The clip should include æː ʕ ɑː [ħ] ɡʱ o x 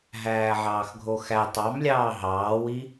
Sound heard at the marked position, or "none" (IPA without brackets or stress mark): x